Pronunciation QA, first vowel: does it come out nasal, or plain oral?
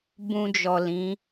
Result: nasal